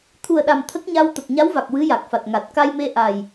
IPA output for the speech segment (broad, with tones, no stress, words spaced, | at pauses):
t̪ʰu˨˩ə̯ɗa˨˩m t̪ʰə˦˥k̚ɲa˧w t̪ə˨˩k̚ɲa˧˥wva˨˩k̚ wɨ˧˥ja˨˩k̚fa˨˩t̚ ŋa˨˩t̚ka˧jme˧ ʔa˨˩j